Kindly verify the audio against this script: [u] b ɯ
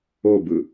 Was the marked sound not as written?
yes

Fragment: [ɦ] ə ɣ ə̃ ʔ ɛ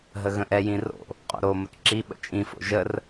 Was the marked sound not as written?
no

